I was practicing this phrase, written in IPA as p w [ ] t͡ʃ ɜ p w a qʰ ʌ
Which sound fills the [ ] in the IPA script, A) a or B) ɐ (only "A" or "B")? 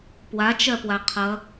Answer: A